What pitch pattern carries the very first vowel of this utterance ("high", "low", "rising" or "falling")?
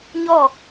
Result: falling